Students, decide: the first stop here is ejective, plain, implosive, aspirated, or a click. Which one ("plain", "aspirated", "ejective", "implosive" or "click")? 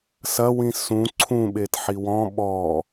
click